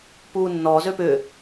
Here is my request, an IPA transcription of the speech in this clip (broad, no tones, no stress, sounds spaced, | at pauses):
p uː nː ɔ z ø p ʏ